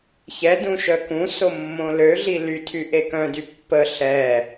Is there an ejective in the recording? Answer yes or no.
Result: no